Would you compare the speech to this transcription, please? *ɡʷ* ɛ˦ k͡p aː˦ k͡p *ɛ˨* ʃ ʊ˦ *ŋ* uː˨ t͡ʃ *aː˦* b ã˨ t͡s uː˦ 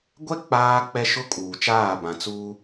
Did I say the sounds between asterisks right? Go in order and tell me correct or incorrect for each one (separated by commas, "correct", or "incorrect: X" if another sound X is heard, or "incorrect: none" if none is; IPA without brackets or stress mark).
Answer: correct, incorrect: ɛ˦, incorrect: kʼ, incorrect: aː˦˨